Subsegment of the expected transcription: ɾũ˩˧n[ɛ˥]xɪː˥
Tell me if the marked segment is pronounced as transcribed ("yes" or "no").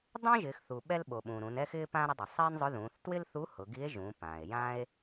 yes